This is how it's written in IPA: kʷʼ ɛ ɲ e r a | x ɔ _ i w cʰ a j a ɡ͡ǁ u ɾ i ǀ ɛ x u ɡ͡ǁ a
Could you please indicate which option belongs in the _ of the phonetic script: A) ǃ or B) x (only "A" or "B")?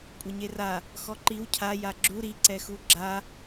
A